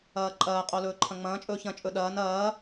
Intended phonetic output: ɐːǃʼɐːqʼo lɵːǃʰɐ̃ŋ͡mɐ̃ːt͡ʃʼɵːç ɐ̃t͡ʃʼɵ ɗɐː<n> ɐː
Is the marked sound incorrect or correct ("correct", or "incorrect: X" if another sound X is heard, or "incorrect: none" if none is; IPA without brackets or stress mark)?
correct